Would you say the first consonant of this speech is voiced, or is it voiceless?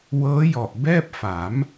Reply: voiced